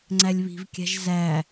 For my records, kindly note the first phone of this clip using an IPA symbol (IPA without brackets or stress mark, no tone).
ŋ͡ǀ